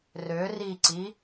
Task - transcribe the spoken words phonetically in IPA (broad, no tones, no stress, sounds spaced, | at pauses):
r ø r i ǀ i